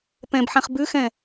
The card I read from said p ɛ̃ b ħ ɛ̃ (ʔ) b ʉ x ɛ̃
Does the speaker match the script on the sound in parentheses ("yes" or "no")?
no